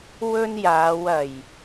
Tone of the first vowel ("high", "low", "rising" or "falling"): high